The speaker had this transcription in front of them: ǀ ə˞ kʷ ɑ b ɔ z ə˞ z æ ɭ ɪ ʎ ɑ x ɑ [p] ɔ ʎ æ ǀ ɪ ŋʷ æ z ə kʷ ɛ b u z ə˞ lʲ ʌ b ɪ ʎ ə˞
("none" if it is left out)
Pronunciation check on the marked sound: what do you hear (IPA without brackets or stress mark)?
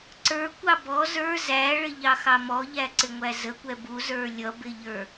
m